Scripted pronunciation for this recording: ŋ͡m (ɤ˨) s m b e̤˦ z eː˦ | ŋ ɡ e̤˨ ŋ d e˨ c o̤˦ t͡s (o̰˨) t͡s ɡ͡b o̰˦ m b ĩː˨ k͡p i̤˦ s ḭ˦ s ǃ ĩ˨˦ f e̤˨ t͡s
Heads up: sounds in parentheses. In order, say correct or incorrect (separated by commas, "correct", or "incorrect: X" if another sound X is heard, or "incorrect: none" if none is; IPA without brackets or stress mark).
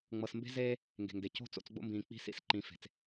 correct, incorrect: o̰˦˨